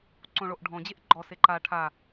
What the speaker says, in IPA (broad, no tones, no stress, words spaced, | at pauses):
ǀõɭoʔɖʱɔ̃d͡ʑeʔ ɡ͡ǃɔ seǃa ʈʰa